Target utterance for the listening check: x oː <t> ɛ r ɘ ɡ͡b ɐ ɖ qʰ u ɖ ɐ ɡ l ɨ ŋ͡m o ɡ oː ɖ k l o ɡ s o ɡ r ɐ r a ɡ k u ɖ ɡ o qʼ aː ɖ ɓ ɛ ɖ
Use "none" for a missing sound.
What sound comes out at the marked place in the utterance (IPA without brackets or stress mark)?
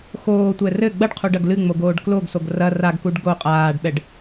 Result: tʷ